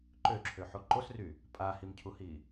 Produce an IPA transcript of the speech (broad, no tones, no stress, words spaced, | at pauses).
ǃøǁʰøħo ǃosry | pʼahimcʰuhi